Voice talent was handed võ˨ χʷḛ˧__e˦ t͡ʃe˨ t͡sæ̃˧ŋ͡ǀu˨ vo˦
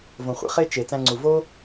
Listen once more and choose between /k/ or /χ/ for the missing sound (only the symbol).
χ